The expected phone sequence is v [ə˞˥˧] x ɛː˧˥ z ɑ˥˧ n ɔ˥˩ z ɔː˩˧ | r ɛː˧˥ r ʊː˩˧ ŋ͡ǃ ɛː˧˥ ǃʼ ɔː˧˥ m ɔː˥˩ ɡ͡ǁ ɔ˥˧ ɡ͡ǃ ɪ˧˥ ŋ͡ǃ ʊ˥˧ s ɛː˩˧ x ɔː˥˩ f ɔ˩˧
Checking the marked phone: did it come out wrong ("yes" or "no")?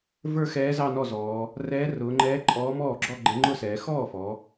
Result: no